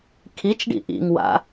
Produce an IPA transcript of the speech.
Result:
kʰ i t͡ʃ ɖ ḭ ʔ ḭ ŋ w a̰

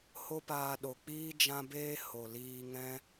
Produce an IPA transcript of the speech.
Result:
h o˦ p aː˧ ɗ o˨ k͡p iː˦ d͡ʒ ã˦ b eː˦ h o˨ l iː˧ ŋ ɛ̃˦

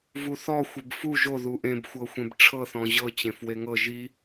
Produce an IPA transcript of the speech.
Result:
v u θ ɔ xʷ e b f u ʒ o ð u ʔ ẽ b xʷ ɤ xʷ ẽ b ʈ͡ʂʰ ɤ θ ɔ̃ ʑ ɤ t͡ɕ ẽ f w e ŋ ɤ ʒ i

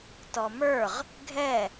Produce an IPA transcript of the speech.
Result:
t ɔ m ə˞ ʁ | ɡʱ ɛ

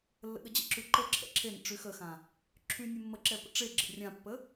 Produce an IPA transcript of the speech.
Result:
lː ə̰ ɠ ə d͡ʑ ə̰ ǁ y ǃ ə ǁʰ ɛ̰ ǁʰ e n ə̰ ʈ͡ʂ y x ə x ã | ǁʰ y nʲ e mː ə ǁ ɛ p ə̰ ʈ͡ʂ e ɡ͡ǁ ə̰ rʲ ã pː ə

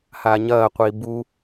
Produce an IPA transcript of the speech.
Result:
h aː ɲ ɐː qʷ iː b u

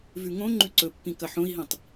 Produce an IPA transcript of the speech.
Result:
v ʉ ŋ õ ŋ͡ǃ ʉ ǀ ɵ pː ĩ k ɐ ħ õ i̯ ɦ ĩ tˤ

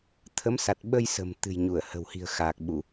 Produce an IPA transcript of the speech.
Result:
t̪ʰ ə˨˦ m s a˨˩ t̚ ɓ ə˧ j s ə̤˨˩ m t̪ ɨ̤˨˩ j ɲ u˧˩ ə̯ h ə̤˨˩ w h i̤˨˩ ə̯ x aː˨˩ k̚ ɓ u˧˩˨

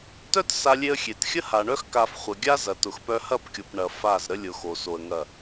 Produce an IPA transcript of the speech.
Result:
t œ˦ t s a˧ lʲ e˧ ə̯ xʲ e˨ t xʲ ə˦ h a˨ ɳ œ˦ x k a˧ f χʷ ə˨ ɡʲ a˦ z ɐ˨ t ʊ˨ x p œ˧ h ɐ˦˨ p kʲ o˨ p ɳ ɐ˨ f a˦˨ z ɾ ə˧ lʲ ʊ˨ x o˨ s o˧ ə̯ ŋ ɐ˦˨

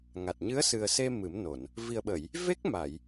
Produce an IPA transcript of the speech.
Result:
ŋ a˨˩ t̚ ɲ ɨ˧˥ ə̯ s ɨ˨˩ ə̯ s e˧ m ɨ˨˩˦ m n o˨˩˨ n | v i˨˩ ə̯ ɓ ə˨˩˨ j | v e˦˥ k̚ m a˨˩˨ j

